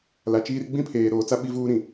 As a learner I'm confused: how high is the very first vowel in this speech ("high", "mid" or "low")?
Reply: low